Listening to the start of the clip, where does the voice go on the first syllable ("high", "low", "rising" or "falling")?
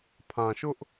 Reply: low